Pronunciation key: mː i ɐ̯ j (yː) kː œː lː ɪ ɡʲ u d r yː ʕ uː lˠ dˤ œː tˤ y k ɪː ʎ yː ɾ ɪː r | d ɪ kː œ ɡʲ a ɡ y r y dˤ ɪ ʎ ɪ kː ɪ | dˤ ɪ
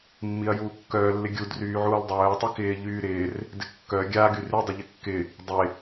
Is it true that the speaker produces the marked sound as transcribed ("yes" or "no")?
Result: no